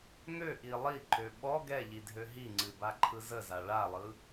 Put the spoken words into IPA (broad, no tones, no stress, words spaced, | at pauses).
ŋøʔi lˠiǃø ɓɔ ɡɛʎi dʱøɦiŋ͡ǀɨ baǃʰɯzəza ɭalˠɯ